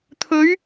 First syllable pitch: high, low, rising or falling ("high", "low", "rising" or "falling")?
rising